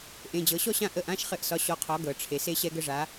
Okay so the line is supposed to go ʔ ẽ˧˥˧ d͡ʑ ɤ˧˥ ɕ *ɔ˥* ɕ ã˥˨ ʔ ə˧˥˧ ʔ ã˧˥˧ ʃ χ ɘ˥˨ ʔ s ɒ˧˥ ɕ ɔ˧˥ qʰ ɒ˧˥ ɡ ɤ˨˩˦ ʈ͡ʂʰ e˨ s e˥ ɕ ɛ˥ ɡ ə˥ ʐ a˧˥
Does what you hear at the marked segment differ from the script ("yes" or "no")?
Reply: no